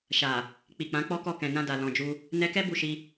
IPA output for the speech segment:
ʃ a˨ | k͡p i˨ k͡p ã˨˦ k͡p ɔ˦ k ɔ˦˨ k ɛ̃˨ n ã˧ d a˨ l ɔ̃˨ d͡ʒ u˧ | n ɛ˧ k ɛ˦ b u˦˨ ʃ i˧

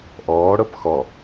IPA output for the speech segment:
ʔ ɔː ɽ ɤ p x ɔ

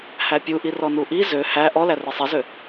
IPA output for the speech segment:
h æ pʲ u ʔ i r ɔ n u ʔ i z ø h æ ʔ ɔ l æ r i sˤ i z ø

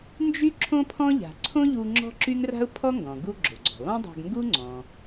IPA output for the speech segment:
n d͡ʒ y˥ ǁʰ õ˥ pʰ ɔ̃˥ ʎ a̤˩ ǀʰ õ˥ ʎ u˧ ŋ͡ǁ ɔ̤˥ ǁ y˥ ŋ r a̤˥ ʊ̯ pʰ ɔ˥ ŋ ɡ ɔ̃˩ ɡ u˧ ɡ͡ǁ o˩ ɡ͡ǀ ɔ̤˩ lˠ ũ˥ dˤ a̤˧ ɡ ŋ ɡ u˥ ŋ͡ǀ ɔ̃˩

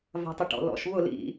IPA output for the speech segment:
v a̤ tˤ ɪ ʈ ɔ̰ l ɔ̰ ʃ β ʊ l ḭ

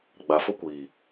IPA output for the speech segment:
ɡ͡b a˨ f ʊ˦ kʷ iː˨

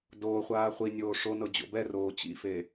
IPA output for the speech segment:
d oː χʷ aː χʷ i nʲ oː ʂ o n ɤ d͡ʑ o̰ b ɛ r oː t͡ɕ ḭ f e

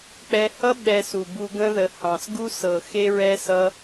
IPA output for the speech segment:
k͡p ɛ˧ h ʌ˦ ɓ ɛ˧ s u˨ b u˧ ɡ ə̃˧ ð ə˨ h ɑ̃˨ s ɡ u˦ s ɤ˨ x e˧ ɹ ɛ˧ s ʌ˧

